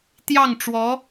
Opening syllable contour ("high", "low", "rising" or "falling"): falling